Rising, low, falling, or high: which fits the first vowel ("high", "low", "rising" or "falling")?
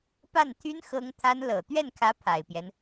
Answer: falling